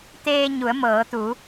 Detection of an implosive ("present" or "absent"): absent